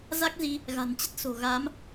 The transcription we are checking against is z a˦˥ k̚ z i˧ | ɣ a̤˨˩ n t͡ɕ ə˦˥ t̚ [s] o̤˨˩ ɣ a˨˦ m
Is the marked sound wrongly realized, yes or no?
no